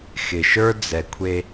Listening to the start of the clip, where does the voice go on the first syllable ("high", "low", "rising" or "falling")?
low